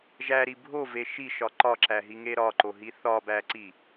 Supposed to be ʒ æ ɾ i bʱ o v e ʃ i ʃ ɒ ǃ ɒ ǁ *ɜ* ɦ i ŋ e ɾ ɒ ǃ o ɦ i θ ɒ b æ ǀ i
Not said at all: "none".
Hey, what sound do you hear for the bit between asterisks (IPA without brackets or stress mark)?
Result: æ